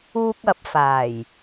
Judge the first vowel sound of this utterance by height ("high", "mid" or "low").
high